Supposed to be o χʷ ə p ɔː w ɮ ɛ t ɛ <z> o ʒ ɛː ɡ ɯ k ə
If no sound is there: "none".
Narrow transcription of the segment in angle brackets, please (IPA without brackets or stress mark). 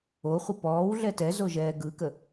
z